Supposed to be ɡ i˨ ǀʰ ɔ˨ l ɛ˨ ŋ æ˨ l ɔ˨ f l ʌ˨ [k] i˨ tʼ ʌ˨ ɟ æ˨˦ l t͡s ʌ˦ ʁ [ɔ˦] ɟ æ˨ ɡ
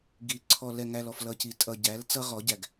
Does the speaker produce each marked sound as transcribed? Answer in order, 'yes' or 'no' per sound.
no, no

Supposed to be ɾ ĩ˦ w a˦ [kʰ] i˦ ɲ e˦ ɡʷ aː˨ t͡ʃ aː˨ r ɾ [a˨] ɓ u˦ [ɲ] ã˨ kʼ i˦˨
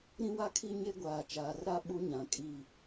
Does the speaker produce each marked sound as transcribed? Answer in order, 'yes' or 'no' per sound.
yes, no, yes

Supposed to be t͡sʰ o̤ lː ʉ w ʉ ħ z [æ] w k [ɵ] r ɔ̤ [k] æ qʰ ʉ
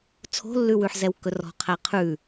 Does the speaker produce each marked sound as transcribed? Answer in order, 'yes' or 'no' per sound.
no, yes, no

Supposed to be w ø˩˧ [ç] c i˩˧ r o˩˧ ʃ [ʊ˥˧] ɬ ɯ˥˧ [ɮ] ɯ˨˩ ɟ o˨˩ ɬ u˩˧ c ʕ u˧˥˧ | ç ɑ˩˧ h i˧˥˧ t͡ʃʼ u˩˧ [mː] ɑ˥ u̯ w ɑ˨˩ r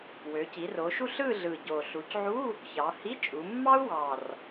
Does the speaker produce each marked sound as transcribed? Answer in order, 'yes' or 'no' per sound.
no, no, yes, yes

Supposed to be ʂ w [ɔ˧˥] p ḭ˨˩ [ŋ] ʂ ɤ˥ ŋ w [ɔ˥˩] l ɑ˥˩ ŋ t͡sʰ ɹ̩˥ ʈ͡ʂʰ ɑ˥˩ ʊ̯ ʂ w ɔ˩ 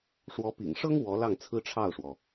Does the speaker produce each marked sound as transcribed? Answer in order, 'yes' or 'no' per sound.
yes, yes, no

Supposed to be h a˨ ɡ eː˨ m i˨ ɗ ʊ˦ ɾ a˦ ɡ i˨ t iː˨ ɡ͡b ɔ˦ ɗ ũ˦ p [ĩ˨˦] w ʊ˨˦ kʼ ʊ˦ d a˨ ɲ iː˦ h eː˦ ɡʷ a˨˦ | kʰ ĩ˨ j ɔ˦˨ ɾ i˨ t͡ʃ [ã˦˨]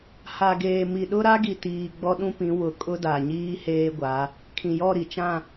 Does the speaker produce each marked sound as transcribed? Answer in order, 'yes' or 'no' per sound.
yes, yes

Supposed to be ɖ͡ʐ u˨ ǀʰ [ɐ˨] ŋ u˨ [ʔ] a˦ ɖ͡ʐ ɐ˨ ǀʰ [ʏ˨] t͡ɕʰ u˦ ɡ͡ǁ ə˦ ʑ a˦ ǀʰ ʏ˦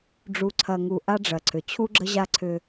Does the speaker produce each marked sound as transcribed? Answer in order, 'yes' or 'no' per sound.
yes, yes, yes

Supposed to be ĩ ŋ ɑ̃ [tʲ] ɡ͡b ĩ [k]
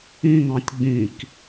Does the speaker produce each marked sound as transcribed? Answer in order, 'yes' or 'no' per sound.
yes, yes

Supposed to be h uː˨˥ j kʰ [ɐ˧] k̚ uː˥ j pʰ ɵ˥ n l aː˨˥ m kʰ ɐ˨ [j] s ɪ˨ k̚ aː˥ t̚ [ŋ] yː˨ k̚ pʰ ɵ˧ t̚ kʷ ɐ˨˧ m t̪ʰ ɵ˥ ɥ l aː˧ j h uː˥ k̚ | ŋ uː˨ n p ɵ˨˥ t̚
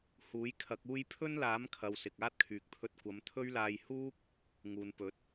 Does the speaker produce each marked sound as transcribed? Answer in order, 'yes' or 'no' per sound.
no, no, no

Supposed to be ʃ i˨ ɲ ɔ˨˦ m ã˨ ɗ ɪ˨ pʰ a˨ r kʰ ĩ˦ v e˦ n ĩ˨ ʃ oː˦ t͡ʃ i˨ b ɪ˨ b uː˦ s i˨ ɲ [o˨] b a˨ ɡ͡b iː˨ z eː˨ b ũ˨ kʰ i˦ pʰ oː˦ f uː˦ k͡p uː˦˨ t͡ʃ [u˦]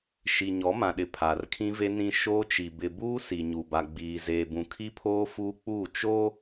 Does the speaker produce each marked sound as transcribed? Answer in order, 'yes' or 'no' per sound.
no, no

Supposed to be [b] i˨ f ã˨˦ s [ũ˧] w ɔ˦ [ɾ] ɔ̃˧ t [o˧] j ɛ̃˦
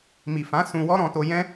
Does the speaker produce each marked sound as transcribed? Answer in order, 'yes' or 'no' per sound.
no, yes, yes, yes

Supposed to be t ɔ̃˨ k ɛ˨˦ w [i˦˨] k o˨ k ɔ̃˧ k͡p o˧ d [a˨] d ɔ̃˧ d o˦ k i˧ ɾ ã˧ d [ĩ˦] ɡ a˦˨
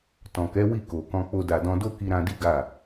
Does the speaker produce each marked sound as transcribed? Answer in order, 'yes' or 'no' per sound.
yes, yes, no

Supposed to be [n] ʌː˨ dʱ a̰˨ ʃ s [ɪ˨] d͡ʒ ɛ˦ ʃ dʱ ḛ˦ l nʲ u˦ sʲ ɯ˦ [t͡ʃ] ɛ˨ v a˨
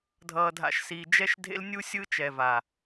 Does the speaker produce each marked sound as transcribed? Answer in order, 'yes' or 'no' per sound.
no, no, yes

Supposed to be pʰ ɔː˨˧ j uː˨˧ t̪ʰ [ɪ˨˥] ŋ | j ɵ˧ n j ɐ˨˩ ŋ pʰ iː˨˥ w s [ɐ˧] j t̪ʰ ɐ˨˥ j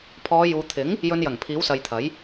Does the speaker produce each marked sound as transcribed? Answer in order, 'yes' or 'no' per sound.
yes, no

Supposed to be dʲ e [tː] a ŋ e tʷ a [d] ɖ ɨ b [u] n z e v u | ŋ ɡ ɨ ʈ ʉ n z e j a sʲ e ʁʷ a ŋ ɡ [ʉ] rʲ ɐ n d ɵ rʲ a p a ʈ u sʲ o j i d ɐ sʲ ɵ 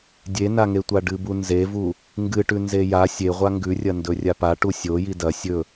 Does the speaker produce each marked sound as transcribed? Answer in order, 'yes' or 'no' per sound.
no, no, yes, yes

